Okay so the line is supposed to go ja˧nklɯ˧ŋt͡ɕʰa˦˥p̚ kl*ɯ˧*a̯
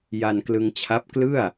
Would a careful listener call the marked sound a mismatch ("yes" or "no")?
yes